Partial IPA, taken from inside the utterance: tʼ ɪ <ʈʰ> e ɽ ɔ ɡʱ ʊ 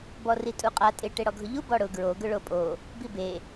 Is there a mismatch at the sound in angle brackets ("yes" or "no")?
yes